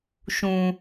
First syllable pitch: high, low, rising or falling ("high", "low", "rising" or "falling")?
low